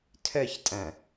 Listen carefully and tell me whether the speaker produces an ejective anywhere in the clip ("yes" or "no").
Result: yes